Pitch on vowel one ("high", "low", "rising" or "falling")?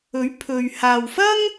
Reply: rising